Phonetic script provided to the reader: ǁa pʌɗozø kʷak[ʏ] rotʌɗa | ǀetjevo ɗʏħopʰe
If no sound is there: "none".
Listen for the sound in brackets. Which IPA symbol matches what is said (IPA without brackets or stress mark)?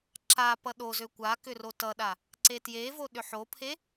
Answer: ʏ